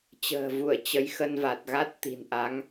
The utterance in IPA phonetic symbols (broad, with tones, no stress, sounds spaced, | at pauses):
t͡ɕ ə̤ː˨˩ v u˧˩ ə̯ t͡ɕ ə˨˦ j x ə˧ n v a˨˩ t̚ ɣ a˦˥ t̚ t̪ i̤˨˩ n ʔ a˨˦ ŋ